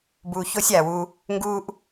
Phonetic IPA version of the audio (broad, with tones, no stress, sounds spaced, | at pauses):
b uː˨ ç oː˦ sʲ aː˩ w u˨ | ŋ ɡ uː˥ ʔ